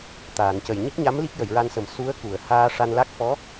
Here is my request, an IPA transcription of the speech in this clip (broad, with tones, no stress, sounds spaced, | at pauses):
t̪ aː˨˩˨ n c ə˨˩ j ɲ i˦˥ k̚ ɲ a˧˥ m l i˦˥ k̚ j ə˨˩˨ j ɹ a˧ n s ə˨˩˦ m s u˧˥ ə̯ k u˨˩˨ ə̯ h aː˧ ʂ a˧ n l a˦˥ k̚ f ɔ˧˥